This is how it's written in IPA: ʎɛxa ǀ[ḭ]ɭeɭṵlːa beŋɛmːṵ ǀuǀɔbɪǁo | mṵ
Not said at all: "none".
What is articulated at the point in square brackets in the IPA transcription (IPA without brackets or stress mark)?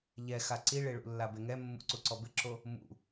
i